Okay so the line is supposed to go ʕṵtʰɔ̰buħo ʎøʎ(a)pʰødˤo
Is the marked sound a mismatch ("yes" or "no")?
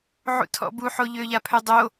no